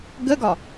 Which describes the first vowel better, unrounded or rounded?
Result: unrounded